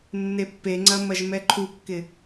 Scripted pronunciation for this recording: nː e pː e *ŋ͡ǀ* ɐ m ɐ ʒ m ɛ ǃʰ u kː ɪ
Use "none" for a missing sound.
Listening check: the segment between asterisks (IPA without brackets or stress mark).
ŋ͡ǀ